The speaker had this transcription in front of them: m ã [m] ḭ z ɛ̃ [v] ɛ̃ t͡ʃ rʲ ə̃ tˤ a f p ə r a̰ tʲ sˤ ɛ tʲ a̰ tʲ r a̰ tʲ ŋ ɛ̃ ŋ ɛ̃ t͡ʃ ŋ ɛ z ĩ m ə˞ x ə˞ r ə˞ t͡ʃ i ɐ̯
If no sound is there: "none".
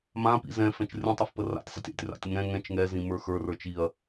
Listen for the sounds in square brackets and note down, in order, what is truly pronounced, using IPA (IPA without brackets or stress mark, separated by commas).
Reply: p, f